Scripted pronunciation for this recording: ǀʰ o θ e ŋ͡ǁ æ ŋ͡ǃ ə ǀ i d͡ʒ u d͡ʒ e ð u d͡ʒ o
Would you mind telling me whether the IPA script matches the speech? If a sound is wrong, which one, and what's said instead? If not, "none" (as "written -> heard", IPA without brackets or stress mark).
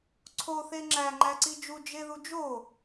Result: ə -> æ